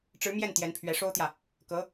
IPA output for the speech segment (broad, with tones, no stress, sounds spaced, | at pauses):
ʈ͡ʂ ɻ̩˧˥ m j ɛ˥˩ n t̪ j ɛ˧˥ n pʰ ɥ ɛ˧˥ ʂ o˥ ʊ̯ t̪ j ä˨ | k ɤ˧˥